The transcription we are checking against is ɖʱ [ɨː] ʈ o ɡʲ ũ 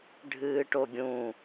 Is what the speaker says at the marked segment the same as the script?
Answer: yes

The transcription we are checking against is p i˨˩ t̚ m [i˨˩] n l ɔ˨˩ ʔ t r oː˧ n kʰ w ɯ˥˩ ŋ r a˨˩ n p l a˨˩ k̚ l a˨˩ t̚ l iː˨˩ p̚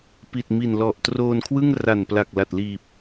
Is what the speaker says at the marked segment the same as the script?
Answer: yes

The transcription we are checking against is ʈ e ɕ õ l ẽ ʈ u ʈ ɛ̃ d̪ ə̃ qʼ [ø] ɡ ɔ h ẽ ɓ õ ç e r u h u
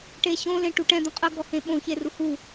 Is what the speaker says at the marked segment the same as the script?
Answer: no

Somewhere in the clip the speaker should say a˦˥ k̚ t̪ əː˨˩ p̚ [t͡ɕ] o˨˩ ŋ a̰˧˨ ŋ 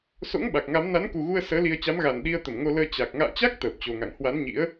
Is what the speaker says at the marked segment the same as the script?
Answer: yes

